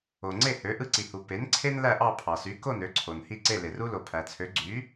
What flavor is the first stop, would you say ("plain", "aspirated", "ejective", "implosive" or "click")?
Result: click